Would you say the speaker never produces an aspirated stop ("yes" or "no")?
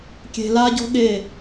yes